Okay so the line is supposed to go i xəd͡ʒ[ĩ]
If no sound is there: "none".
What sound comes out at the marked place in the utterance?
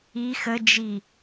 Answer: i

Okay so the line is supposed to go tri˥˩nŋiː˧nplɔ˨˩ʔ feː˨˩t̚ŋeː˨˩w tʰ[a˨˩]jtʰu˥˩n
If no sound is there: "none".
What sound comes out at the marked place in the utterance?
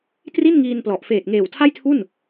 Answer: a˥˩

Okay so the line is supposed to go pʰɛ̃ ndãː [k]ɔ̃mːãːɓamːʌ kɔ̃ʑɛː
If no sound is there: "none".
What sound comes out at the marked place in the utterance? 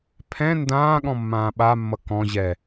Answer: ɠ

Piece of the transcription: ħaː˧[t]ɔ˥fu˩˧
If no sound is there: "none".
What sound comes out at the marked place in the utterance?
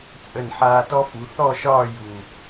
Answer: t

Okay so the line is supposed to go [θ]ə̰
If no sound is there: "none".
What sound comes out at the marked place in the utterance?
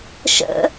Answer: ʃ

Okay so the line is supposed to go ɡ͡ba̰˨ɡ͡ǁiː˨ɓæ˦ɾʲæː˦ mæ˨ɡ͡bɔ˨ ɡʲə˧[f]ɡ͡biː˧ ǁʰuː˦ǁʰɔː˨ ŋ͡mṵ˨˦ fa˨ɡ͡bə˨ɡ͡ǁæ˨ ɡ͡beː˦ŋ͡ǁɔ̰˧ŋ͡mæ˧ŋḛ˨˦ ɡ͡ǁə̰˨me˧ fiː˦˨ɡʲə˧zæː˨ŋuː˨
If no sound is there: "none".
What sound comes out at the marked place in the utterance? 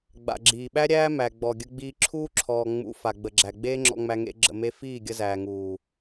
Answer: none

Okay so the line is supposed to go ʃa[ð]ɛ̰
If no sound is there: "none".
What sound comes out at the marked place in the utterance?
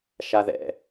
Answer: ð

